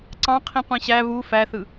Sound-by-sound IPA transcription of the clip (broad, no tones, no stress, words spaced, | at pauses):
ǀɑ̃ qʰĩqʷĩɕæ βu fæθɯ